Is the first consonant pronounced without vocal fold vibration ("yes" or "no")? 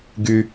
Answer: no